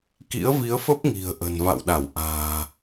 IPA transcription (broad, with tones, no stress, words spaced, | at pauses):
kḭ˧˥ə̯vi˨˦ə̯fə˦˥p̚ ŋi̤˨˩ə̯ʔə̤˨˩nva̰˧˨wɗa˧˩w ʔa̤ː˨˩